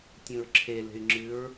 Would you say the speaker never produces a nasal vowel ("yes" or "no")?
no